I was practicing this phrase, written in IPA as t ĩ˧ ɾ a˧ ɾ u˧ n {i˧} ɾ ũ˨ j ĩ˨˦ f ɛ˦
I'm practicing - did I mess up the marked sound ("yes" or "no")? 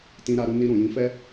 no